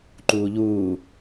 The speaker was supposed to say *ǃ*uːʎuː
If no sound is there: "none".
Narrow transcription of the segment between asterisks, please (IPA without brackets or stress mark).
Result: ǃ